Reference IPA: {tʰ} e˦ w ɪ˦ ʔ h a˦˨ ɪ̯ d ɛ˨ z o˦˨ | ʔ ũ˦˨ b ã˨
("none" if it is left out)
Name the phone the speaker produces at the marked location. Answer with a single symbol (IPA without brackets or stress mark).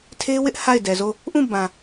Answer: tʰ